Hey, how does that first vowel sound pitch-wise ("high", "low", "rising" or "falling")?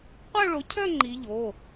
falling